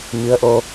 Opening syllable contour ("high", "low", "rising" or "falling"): rising